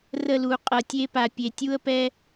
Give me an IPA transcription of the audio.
r ə˦˨ l u˨ qʼ ɤ˨ tʲ e˧ p a˨ pʲ e˨ tʲ u˦ ə̯ p ɛ˦

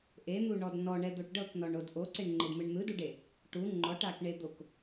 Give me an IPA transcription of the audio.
ʔ e n̪ u ɳ ɔ d n ɔ ɳ ɛ d̪ o ʈ ɖ ɤ k n ɔ ɳ o d ʔ o ǀ e ɳ ŋ͡ǃ e d m ɯ ɳ n̪ ɯ d u ɖ e | ʈ u ŋ͡ǃ ɔ ʈ a k ɳ e d̪ o k

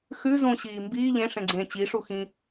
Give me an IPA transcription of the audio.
x ʉ z ũ ɕ iː m b iː ʎ ẽ ʂ ẽ ɡ͡ǀ ẽː t͡ɕ i ʂ u x ĩ

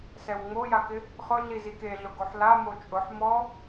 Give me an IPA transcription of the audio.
s ɛ w ŋ͡m o j a k ɪ | χ ʊ ɮ i z i k e ɮ ʊ ɡ o ħ l a m o t͡ʃʼ ʊ ħ m ɔ

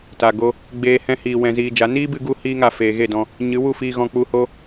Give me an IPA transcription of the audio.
t a˨ ɡ o˧ | ɡ͡b eː˧ h ɛ̃˧ h iː˨ w ɛ̃˧ z iː˧ d͡ʒ a˨˦ n iː˦ b ɨ˧ ɡ u˦ h iː˦ ŋ a˧ f eː˨ ɣ e˦˨ d ɔ̃˧ | ɲ ɨ˨˦ w u˦˨ f iː˧ ɣ ɔ̃˧ k͡p u˧ h o˦

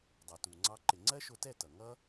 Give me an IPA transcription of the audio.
dˤ ɑ˨ t u˨ ŋ͡ǀ ɑ˦ ǃ ɪ˨ ŋ͡ǀ ɜ˦ ʃ ʊ˧ t ɛ˦˨ t ʌ˨ ŋ ʌ˦

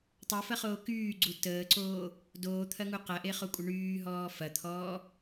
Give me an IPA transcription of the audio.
tˤ o f ɐ χ oː k yː ɡ͡ǀ u t əː ǀ oː | d oː t̪ʰ ɐ ŋ u q ɐ ʔ e χ o kʷʼ ə ɳ yː ɦ ɔː f ɐ t̪ʰ ɔː

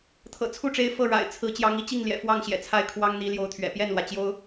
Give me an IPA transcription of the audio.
t̪ʰ ɤ̰˨˩ t͡sʰ u˥˩ ʈ͡ʂ e˧˥ ɪ̯ f ɤ˥˩ ɻ a̰˨˩ ɪ̯ t͡sʰ ɹ̩˧˥ t͡ɕ j ɑ˧˥ ŋ i˥˧ t͡ɕ i˥˩ ŋ l j ɛ̰˨˩ f w ɑ˥˩ ŋ ɕ j ɛ̰˨˩ t͡sʰ a˥˩ ɪ̯ kʰ w ɑ˥ ŋ n̪ i˧˥ l j o˧˥ ʊ̯ t̪ʰ ɥ ɛ̰˨˩ p j ɛ˥˩ n l w ä˩ t͡ɕ j o˥ ʊ̯

